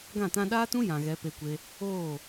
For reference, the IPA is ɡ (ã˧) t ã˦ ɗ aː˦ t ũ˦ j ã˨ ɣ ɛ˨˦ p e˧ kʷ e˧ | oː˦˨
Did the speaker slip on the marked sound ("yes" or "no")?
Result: yes